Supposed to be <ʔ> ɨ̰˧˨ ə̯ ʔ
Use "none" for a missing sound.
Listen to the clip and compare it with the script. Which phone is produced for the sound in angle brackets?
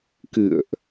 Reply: k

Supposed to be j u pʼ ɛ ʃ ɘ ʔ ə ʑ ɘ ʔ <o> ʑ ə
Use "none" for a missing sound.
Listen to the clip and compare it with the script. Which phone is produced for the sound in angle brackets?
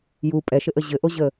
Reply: o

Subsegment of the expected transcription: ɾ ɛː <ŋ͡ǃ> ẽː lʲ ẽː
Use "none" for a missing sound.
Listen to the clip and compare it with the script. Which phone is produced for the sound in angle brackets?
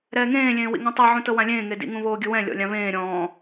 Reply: ŋ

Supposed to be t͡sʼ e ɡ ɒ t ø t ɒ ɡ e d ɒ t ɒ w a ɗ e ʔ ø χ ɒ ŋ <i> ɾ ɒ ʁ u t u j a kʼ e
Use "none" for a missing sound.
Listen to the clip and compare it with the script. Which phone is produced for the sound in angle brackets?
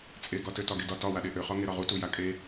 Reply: e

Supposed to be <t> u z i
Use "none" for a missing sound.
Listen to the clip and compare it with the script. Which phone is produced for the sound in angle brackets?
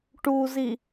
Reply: ʈ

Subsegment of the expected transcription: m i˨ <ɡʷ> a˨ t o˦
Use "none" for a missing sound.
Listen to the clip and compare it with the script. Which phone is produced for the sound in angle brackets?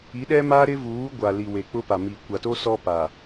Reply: kʷ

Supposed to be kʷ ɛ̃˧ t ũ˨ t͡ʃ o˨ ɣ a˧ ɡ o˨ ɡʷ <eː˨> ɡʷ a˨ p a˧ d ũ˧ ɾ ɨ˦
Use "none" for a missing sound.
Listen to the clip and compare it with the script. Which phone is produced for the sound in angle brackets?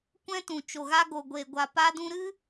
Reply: e˨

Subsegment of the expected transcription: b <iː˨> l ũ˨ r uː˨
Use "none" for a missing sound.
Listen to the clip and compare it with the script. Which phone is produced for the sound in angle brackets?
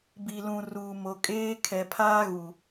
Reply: i˨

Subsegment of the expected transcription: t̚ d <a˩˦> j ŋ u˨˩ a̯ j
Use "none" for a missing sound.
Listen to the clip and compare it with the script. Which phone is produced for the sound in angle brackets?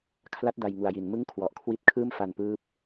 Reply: a˧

